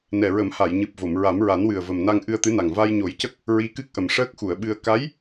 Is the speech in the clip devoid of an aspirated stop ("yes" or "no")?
yes